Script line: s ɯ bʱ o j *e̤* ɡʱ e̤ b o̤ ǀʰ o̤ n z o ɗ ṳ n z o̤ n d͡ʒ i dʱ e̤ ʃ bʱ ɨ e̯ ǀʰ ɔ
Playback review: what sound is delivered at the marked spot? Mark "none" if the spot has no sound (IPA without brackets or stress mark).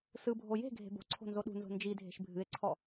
e̤